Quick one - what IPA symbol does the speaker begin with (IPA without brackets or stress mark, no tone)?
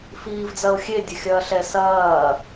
f